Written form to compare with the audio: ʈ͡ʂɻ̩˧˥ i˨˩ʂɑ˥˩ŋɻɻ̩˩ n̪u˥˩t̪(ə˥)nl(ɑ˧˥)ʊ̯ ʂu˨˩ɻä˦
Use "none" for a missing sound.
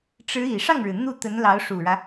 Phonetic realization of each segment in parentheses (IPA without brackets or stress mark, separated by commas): ə˧˥, ɑ˧˥